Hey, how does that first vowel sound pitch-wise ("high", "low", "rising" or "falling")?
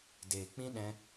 low